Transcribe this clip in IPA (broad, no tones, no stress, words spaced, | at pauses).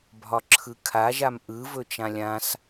bʱɒǁʰɯkʰaʒam ʔɯvɵ t͡ʃãlʲãs